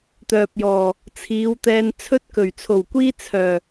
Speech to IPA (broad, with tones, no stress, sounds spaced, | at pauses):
t̪ œː˨ p̚ j ɔː˨˩ | t͡sʰ iː˨˧ w t̪ ɛː˧ n t͡sʰ ɵ˥ t̚ k ɵ˨˩ ɥ t͡sʰ o˨˩ w kʷ iː˥ t͡sʰ œː˨˩